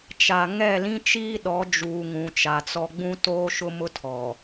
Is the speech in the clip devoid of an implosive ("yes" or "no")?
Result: no